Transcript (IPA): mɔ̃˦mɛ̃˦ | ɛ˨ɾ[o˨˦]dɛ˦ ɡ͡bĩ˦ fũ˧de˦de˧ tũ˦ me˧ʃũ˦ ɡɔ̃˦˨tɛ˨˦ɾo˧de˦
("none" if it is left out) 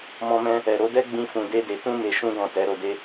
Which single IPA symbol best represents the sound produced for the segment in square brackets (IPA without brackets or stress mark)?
o˨˦